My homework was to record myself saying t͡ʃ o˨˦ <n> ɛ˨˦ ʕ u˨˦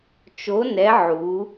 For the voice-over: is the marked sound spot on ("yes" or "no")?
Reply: yes